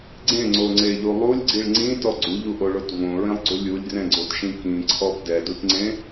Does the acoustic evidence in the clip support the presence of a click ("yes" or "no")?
yes